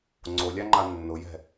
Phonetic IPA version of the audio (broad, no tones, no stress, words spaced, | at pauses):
ŋ͡ǀolʲaŋ͡ǃa nːʊjɛ̤